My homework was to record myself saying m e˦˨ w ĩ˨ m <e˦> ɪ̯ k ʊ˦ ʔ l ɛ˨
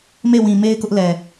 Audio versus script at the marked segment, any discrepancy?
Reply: no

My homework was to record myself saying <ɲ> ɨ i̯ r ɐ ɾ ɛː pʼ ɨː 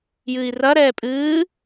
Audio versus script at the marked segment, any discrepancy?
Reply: yes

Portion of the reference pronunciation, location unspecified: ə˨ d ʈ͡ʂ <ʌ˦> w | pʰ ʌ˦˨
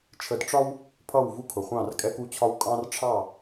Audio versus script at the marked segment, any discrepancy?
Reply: yes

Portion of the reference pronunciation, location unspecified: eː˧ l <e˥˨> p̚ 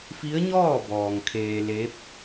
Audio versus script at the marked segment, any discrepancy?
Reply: yes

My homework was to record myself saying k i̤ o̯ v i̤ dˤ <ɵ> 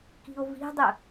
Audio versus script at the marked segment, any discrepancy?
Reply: no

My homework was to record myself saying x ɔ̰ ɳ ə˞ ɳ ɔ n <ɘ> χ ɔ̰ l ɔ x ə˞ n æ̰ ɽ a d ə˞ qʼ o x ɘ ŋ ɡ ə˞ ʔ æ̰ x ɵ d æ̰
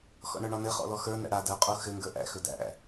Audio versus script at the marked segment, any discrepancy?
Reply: no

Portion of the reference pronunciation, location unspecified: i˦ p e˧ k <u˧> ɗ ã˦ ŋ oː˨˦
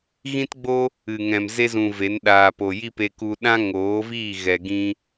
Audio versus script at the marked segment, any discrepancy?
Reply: no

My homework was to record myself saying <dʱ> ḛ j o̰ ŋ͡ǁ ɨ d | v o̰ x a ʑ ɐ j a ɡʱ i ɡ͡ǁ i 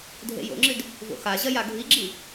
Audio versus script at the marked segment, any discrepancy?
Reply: no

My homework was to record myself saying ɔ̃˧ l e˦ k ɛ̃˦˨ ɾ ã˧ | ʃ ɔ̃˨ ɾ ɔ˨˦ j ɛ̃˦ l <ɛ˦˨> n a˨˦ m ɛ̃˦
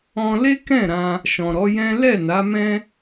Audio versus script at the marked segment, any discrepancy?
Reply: no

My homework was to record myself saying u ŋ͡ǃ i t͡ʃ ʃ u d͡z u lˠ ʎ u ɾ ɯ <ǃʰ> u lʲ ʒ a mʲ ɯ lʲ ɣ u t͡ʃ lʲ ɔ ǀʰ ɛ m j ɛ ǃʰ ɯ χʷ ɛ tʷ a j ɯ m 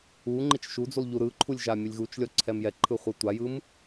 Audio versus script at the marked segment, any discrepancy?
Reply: no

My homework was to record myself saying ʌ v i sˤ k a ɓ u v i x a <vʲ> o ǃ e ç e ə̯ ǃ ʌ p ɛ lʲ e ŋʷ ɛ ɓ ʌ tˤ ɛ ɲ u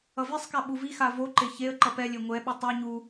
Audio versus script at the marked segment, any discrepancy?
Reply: yes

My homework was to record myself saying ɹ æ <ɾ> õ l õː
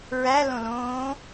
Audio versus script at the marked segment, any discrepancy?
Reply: yes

